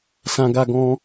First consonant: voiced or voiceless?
voiceless